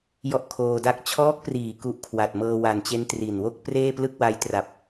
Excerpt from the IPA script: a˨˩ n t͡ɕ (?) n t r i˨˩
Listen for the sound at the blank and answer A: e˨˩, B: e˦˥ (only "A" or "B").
B